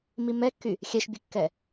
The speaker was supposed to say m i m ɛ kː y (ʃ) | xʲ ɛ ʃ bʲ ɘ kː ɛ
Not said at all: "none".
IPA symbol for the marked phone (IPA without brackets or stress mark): none